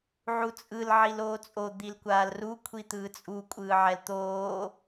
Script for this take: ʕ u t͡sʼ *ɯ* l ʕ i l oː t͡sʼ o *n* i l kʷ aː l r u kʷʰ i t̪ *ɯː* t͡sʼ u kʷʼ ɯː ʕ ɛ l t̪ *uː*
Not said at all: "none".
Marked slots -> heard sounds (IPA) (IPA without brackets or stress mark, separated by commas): ɯ, d̪, ɯː, oː